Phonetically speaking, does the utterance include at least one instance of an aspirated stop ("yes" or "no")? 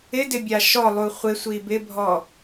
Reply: no